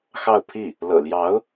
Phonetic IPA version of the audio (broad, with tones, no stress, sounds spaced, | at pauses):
x ɑ˥˧ ʊ̯ pʰ i˥˩ | l ɤ̰˨˩ l j ɑ˧˥ ʊ̯